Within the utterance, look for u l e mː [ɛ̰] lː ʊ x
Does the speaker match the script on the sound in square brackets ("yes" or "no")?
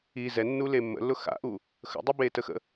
no